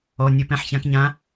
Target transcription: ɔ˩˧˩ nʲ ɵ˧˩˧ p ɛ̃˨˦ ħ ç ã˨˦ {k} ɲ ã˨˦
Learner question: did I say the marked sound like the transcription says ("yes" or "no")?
yes